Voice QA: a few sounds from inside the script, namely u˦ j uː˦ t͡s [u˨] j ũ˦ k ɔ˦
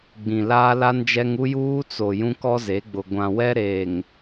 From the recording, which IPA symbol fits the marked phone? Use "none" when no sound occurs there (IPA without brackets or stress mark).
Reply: o˨